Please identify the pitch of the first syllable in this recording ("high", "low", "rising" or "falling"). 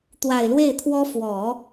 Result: low